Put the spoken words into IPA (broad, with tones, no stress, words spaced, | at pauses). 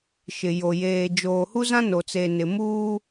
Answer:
ʃɪ˨jo˨ jeː˨ d͡ʒoː˨hu˦zã˦no˨ t͡se˨nɪ˨muː˦